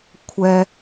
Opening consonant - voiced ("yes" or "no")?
no